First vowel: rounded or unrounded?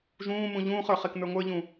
rounded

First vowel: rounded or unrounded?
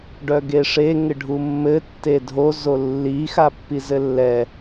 rounded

